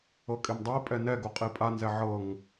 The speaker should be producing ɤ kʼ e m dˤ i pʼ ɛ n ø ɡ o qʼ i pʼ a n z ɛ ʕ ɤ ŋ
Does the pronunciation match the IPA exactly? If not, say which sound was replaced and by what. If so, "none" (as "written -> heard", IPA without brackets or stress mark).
ø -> ɛ